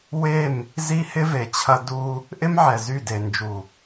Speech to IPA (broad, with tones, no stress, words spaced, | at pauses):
we˦˨m | zi˦hɪ˦ve˨t͡ɕʰɐ˦ du˦ | ʔɪ˦mʕɛ˨zy˦˨de˨ nd͡ʒu˨